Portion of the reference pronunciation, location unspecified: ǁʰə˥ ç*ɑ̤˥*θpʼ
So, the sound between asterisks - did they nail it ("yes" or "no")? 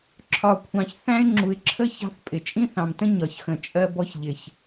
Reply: yes